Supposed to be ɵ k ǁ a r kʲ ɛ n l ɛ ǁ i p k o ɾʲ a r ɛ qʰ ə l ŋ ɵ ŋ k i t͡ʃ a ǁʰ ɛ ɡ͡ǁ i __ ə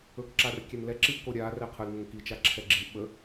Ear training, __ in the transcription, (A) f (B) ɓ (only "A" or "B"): B